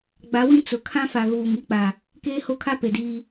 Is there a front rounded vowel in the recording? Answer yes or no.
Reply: no